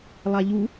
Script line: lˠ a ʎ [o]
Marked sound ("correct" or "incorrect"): incorrect